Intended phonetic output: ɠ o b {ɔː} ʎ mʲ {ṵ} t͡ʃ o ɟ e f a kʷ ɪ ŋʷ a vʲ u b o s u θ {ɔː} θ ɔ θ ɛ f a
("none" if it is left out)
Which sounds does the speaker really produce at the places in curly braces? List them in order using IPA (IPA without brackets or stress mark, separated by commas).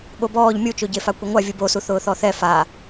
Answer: ɔː, u, ʊː